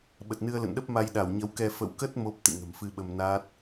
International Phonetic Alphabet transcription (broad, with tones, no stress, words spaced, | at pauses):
ɓə˨˩t̚nɨ˧ə̯lə̰˧˨nɗə˦˥p̚ ma˧jɗa˧˩wɲə˨˦wkɛ˧ fə̰˧˨wkə˦˥t̚ mo˦˥p̚ t̪ɨ̰˧˨ŋə̤˨˩mfɨ˧ɓə˧m naː˦˥t̚